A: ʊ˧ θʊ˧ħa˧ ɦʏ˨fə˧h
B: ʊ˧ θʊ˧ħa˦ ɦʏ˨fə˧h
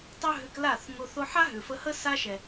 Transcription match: B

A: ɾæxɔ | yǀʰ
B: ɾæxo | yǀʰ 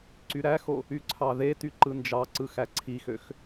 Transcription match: B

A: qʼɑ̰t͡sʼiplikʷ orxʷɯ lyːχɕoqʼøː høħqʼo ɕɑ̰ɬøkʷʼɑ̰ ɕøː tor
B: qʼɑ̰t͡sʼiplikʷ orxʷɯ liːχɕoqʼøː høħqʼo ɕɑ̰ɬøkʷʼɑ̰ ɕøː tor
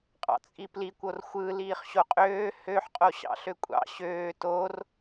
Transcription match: B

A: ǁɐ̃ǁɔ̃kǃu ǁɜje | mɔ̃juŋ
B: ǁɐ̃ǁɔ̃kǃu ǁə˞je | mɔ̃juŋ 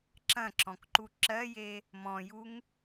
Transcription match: A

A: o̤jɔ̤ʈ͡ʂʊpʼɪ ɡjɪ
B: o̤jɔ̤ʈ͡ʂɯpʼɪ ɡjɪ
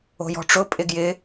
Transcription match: A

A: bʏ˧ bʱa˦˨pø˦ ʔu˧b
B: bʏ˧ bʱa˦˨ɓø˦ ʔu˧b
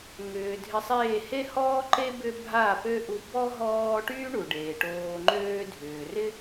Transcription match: A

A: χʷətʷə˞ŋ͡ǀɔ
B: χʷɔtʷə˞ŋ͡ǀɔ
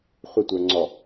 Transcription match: A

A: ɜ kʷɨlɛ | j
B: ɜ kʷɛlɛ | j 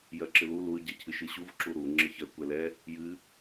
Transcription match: B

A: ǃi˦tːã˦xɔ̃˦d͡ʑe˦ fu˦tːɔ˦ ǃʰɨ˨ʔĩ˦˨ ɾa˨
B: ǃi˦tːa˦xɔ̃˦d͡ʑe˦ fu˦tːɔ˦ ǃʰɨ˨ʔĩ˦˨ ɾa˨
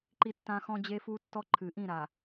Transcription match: A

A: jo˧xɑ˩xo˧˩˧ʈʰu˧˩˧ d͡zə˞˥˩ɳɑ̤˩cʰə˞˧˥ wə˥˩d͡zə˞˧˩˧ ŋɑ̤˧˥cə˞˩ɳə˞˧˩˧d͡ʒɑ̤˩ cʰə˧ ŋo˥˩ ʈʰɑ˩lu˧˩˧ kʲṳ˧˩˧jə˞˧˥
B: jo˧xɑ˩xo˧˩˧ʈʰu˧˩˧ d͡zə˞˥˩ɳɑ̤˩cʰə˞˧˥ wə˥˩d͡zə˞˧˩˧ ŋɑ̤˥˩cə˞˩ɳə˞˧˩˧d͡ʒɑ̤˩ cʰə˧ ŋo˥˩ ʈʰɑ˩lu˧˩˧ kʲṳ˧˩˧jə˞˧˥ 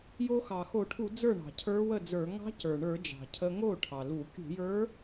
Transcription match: A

